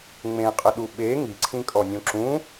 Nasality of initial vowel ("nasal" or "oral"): nasal